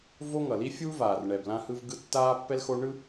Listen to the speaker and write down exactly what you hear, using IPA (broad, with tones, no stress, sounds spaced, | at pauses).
v o˦ ŋ ʌ˨ l i˦ fʲ uː˦ v aː˨ r ɳ ɛ˨ b l ã˦ h ɯ˦ v ɡ ɯ˦ tː aː˦ pː ɛ˦ l x o˦ ɳ ɯ˦